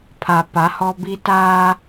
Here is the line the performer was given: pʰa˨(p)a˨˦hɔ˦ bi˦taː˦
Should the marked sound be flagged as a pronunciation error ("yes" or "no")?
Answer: no